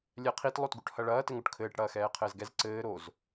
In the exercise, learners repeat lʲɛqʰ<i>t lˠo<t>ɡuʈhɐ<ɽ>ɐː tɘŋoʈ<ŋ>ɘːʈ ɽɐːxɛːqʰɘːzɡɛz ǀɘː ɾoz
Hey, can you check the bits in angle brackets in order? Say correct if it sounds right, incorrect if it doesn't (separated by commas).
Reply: correct, correct, incorrect, incorrect